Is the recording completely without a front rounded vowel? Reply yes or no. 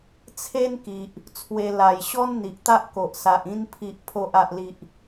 yes